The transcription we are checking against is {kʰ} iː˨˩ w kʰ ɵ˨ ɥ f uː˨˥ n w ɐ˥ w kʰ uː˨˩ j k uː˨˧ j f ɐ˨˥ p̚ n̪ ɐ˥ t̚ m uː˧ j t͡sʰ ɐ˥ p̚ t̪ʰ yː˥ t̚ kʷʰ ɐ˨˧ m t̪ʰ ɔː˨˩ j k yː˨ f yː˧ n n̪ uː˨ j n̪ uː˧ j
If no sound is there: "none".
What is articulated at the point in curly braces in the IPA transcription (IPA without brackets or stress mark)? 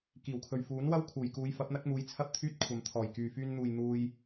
k